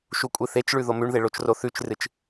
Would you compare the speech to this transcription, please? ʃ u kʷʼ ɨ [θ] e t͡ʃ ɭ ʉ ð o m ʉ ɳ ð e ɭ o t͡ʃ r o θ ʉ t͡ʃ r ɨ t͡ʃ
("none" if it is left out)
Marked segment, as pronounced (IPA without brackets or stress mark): θ